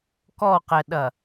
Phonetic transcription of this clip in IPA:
kɔqɛɗɐ

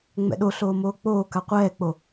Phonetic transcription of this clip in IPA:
ŋ͡mɛ̰ɗoɬoː moːk͡poːka qʷɛːk͡po

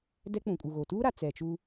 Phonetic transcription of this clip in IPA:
dɛ˦k͡pũ˨kʼu˨ɣo˨ tuː˦ɾa˨ t͡sɛ˨t͡ʃu˦

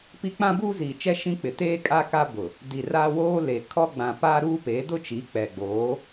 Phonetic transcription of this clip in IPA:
pi˦ k͡pã˦buː˦ziː˨t͡ʃɛ˦ ʃĩ˦k͡pɪ˨ teː˦ kʼa˦ka˦bʊ˨ | di˨raː˦ woː˦le˨kʰɔ˦ɡ͡bã˨ paː˦ɾuː˦peː˨˦ dʊ˦t͡ʃi˨˦k͡pɛ˨ɡ͡boː˨˦

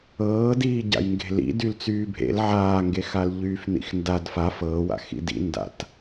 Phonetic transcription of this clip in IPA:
ɤːdiːɟa̰j ŋɡe̤lḭ dylt͡syːbʱḛl ʕaːŋɡexal ʎyːfnḭxndad faf ɤːwa̰ xḭdḭ nda̰t

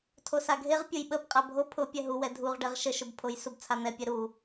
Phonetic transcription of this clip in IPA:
tʰosaɡʱeʁ pʲʊjɓəb qʼabʱo pʰʊ pʲɛɦuwɛ dʱuʁɖɛʁ ʃəʃʊbpʰoj subt͡sʰan̪ɛpʲɛ ɾu

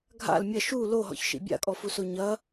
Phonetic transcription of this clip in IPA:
ɡʱa̰l mʲɐ ʃu loɦɔ̰çʃḭ bʲa̰kʼɔfuso ɲɐ

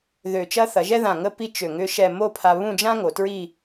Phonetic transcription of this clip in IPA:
ðø˧˩t͡ʃɐ˥ θɐ˩˧ʒɛ˥ðã˧˩ ŋə˥˧pi˥˧t͡ʃ ø˧˩ŋʏ˥ʃɛ˥˧ mo˥˧pʰa˧βũ˥˧d͡ʒã˥ ŋo˩˧tɹi˥˧

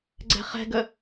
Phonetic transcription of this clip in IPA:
ɡ͡ǀɛ̤χɛ̤ɡə

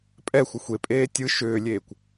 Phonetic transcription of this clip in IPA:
pʼɛxʷə xʷepʼeː tʲɯ ʃʏːlʲeːkʷ

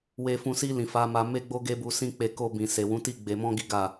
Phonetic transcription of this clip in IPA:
we˨fũ˨ si˧ lĩ˨ fa˨˦ma˧ me˦ɡ͡bo˦ ɡe˦bu˧sĩ˦k͡pe˧ ko˧bĩ˨ se˨wũ˨˦ti˦˨ ɡ͡be˧mɔ̃˦ɡi˦ ɡa˦˨

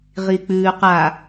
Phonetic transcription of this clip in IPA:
ʁik͡pʉːqa

